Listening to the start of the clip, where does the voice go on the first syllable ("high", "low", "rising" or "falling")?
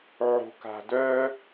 low